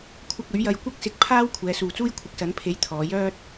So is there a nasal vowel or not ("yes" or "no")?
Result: no